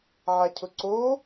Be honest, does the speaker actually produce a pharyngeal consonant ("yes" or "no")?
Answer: yes